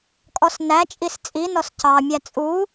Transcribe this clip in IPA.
kʼ ɔ s n æ t͡ʃʼ i s t͡sʼ i n ɔ s c ɑ mʲ æ t͡sʼ u

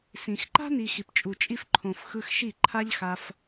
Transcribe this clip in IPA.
s ĩ˨ x ǃ a̤˦ n i˨ x i˨ p t͡ʃʼ u˨ t͡ʃʼ i˧ f ǃʰ õ˨ f x ɯ˧ x ʃ i˦˨ ǃʰ a˦ ʎ x a˧ f

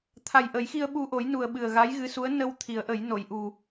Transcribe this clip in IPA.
t̪ʰ a˨˩ j ʔ ə˨˩˦ j x i˧ ə̯ ɓ u˧ ʔ o˨˩˦ j n u˨˩ ə̯ ɓ ɨ˨˩ ə̯ ɣ a˧˥ j ɣ ɨ˧˥ s u˧˥ ə̯ n ə˧ w t̪ʰ i˨˩˦ ə̯ ʔ ə˨˩˦ j n o˨˩˨ j ʔ u˨˩

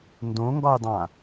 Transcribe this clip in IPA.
n d õ ŋ ɡ ɒ j dˤ ã

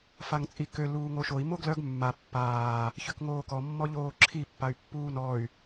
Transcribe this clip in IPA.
f a ŋ t͡sʼ i k ø l uː ŋ o ʃ o i̯ m o ɡ l œ ɡ mː a pː aː | ç ø k ŋ oː k ɔ mː ɔ ʎ oː ǁʰ i pː a y̯ pː uː n ɔ y̯

